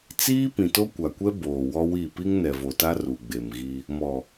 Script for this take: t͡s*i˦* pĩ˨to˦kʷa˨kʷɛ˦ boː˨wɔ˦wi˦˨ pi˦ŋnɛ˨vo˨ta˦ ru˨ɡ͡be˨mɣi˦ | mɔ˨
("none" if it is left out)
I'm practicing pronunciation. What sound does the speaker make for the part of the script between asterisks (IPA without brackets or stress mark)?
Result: iː˦